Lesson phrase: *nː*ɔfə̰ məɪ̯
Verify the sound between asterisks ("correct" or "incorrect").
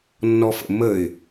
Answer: correct